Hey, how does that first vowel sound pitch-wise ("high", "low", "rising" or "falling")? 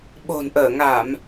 low